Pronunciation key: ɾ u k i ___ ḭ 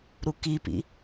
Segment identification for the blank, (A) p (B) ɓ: A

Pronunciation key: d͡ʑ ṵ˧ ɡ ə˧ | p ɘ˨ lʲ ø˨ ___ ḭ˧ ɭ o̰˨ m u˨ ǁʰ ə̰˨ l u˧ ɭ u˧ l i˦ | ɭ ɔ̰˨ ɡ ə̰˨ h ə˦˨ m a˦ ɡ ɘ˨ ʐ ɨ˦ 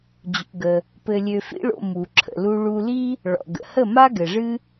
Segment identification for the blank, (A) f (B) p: A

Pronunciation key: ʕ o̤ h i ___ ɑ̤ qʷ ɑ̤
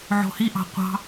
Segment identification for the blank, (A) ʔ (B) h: A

